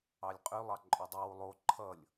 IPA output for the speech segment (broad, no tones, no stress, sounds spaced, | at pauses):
ɑ lʲ qʼ y lˠ ɑ ǃʼ œ dˤ u w u lˠ o ǃʰ ʌ lʲ